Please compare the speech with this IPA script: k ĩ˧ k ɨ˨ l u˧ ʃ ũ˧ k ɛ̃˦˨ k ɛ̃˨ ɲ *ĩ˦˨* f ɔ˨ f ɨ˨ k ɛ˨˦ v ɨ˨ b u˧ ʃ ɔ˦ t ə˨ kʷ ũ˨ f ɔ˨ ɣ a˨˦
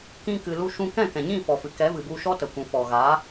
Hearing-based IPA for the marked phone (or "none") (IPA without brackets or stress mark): ĩ˦˨